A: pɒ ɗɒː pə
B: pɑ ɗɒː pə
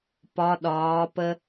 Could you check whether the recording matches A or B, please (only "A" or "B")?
A